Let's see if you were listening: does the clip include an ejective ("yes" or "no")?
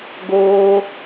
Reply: no